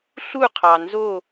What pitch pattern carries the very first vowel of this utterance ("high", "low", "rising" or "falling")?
falling